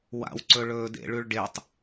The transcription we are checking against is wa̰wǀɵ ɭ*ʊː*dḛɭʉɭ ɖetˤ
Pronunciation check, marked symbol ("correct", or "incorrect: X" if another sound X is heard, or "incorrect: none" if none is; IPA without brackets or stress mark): incorrect: ɵː